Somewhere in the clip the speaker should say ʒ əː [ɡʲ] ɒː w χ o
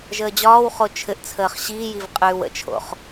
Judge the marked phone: incorrect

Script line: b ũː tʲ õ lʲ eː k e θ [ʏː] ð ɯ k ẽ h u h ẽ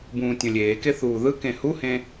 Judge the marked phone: incorrect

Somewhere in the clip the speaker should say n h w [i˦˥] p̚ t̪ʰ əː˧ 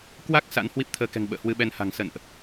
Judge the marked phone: correct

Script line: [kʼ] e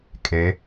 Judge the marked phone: correct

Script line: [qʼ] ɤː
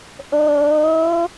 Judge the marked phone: incorrect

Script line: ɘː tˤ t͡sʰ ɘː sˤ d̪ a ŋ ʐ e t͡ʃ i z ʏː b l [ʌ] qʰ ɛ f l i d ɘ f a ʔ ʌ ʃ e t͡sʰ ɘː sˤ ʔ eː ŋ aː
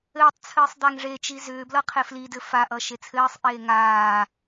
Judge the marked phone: correct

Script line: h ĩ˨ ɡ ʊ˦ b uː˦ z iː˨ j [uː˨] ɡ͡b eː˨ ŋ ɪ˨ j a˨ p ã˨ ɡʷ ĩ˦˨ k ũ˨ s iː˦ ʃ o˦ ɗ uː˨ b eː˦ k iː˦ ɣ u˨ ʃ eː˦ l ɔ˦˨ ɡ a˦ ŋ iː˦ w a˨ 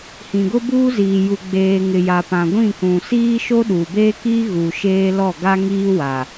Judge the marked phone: incorrect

